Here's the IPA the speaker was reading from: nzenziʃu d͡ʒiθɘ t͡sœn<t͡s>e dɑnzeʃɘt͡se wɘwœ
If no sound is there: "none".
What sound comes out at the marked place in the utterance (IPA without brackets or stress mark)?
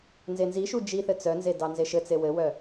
z